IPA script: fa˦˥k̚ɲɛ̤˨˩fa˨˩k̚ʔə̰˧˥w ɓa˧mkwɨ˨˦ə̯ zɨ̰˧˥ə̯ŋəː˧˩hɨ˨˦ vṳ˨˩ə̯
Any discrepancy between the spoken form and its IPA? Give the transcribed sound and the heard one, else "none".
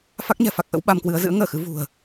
h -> x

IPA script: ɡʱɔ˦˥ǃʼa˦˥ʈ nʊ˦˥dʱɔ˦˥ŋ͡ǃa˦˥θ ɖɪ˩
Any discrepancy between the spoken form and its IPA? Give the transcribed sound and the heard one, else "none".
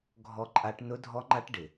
θ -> ʈ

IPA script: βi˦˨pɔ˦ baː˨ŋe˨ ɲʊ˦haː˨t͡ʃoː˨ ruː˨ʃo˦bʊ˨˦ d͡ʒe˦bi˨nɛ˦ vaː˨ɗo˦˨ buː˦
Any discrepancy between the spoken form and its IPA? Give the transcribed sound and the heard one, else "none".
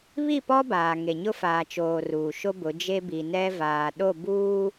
h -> f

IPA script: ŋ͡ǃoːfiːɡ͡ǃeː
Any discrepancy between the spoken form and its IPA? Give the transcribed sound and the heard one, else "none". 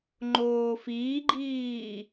eː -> iː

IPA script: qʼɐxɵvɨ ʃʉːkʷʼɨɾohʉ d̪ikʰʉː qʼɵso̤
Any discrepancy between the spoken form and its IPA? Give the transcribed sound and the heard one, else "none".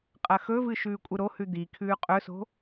none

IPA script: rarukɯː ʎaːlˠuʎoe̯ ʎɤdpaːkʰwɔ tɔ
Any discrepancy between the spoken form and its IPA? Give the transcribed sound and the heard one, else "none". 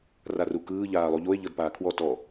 none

